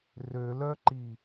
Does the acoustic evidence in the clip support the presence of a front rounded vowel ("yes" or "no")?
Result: yes